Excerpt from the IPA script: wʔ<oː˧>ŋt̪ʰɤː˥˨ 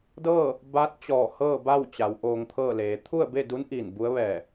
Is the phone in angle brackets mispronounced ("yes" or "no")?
no